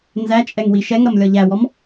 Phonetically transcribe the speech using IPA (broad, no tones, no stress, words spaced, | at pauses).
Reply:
nzæt͡ʃʼɛŋ wiʃɛŋɾʌm lʲɒʎæwɔm